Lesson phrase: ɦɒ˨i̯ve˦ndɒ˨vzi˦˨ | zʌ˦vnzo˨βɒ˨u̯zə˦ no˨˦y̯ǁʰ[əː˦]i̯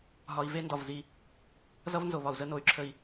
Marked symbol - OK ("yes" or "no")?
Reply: no